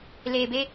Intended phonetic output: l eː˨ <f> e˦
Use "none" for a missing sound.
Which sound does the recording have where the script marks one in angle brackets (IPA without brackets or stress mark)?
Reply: b